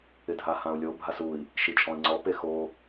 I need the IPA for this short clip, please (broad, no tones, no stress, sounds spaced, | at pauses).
ɪ dʱ a h ã u̯ lʲ o bʱ a s u i̯ | ʃ i t͡ʃʼ ɔ̃ i̯ ŋ͡ǀ ɔ p e x o